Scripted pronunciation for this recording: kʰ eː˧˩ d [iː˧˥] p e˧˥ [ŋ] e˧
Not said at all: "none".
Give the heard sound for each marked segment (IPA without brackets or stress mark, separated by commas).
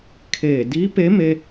iː˧˥, m